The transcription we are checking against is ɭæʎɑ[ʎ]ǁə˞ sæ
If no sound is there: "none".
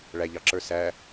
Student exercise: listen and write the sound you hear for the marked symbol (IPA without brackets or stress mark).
none